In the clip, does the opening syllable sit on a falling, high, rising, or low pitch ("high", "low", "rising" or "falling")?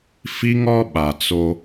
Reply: high